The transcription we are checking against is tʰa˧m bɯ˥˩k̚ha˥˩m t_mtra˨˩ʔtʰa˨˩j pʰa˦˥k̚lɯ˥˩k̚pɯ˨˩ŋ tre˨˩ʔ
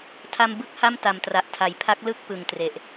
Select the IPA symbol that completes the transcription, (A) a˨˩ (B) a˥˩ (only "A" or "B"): A